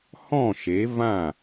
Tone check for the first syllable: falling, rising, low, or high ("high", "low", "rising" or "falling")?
falling